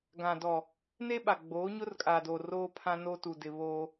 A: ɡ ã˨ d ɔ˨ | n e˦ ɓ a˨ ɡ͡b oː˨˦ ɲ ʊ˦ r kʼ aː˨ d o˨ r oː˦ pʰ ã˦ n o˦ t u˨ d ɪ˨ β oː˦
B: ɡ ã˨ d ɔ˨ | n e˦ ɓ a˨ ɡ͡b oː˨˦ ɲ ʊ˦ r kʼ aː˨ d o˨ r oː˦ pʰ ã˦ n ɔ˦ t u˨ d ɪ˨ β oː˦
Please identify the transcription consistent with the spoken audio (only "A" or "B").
A